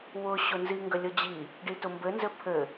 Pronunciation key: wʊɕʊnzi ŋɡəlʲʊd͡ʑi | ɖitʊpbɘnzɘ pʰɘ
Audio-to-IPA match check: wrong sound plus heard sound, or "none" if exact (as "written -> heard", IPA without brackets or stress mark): p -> m